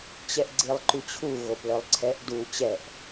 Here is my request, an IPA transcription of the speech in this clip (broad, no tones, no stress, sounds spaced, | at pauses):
t͡ɕ ɛ ʔ ɡ͡ǀ i lˠ ǃ y t͡ɕʰ u ɣ o p l œ lˠ ǀʰ ɛ ʔ d u t͡ɕ ɛ ʔ